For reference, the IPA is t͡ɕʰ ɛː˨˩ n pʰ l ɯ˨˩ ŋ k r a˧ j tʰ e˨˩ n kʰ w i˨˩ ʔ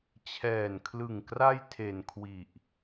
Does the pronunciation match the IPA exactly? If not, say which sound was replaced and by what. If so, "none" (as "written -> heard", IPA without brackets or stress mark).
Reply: pʰ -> kʰ